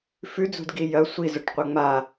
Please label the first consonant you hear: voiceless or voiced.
voiceless